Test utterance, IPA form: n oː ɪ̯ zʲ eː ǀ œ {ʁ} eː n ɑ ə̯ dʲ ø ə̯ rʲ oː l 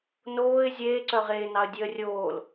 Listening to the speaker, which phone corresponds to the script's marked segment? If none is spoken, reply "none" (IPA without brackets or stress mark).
ʁ